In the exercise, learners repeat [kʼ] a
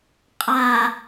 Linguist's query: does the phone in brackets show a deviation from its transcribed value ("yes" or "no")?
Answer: yes